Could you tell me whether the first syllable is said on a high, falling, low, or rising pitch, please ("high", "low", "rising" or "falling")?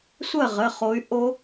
falling